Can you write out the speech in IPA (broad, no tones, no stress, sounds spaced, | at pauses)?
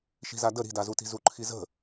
ʃ i̤ z a d ə ɾ i̤ d a z u t i̤ z u ǃʰ i z ə̤